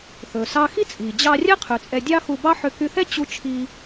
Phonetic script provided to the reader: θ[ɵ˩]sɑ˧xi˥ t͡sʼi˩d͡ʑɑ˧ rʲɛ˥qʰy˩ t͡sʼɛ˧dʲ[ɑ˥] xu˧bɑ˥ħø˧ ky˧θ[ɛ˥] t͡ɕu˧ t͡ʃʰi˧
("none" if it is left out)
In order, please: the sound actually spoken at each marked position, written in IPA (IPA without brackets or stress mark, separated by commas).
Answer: ɵ˩, ɑ˥, ɛ˥